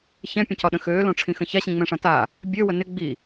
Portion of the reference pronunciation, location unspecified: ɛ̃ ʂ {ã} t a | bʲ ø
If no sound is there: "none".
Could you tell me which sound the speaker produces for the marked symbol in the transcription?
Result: ã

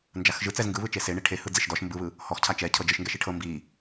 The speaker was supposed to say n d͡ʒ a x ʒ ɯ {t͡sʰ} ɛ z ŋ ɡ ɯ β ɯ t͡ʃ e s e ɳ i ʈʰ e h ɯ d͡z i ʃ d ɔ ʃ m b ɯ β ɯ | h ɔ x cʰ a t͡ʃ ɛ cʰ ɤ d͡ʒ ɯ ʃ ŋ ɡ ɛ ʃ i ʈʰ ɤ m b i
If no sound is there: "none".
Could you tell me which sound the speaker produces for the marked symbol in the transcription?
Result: t͡s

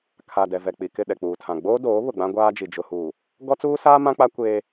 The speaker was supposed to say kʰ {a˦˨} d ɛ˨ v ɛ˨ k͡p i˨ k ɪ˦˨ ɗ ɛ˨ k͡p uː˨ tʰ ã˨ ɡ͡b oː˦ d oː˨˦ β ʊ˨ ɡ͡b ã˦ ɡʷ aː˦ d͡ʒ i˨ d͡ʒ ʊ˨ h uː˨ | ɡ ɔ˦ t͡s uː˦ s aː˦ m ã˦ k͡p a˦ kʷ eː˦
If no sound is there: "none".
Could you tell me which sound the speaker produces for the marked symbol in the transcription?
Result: a˨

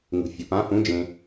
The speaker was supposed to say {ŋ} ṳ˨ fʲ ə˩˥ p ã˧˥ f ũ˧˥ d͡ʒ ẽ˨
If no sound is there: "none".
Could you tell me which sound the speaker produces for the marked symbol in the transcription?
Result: ŋ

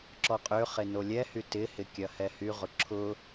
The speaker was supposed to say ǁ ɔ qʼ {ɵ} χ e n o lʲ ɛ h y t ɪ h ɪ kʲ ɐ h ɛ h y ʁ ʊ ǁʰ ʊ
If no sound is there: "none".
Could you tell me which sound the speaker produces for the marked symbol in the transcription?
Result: ø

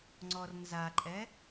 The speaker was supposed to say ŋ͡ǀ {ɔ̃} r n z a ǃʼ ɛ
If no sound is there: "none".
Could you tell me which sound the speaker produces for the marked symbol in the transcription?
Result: ɔ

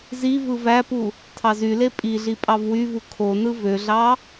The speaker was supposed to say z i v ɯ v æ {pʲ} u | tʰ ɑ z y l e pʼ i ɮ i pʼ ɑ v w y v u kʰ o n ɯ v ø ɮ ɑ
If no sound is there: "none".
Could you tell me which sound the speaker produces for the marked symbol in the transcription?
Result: p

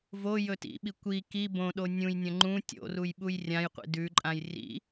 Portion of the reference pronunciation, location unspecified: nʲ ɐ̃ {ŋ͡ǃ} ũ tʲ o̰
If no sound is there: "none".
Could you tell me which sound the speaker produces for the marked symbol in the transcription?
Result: ŋ͡ǃ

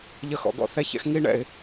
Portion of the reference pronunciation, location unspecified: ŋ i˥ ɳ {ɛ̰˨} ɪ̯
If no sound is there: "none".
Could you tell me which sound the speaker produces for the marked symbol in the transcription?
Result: ɛ̰˨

